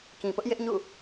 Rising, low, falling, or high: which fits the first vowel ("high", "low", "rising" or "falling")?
low